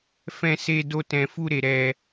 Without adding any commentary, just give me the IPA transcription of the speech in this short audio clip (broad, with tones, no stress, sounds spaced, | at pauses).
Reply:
f ɛ̃˦ s e˦ d o˦ t ɛ̃˧ f u˦ ɾ e˧ ɾ ɛ˧